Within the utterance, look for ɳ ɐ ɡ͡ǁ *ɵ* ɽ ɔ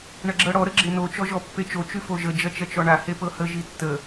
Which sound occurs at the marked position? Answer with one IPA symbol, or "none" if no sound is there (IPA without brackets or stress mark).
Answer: ɤ